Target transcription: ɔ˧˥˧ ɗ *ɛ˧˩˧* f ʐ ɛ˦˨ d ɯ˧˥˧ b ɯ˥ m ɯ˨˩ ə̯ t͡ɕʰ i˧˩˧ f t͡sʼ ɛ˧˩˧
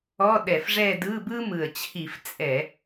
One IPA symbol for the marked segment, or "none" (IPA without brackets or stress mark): ɛ˧˩˧